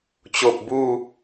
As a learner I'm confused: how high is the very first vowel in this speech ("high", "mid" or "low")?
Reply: mid